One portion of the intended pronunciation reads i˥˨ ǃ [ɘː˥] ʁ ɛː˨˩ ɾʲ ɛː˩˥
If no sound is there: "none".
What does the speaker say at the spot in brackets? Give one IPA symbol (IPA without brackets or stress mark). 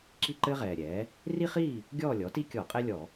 ɘː˥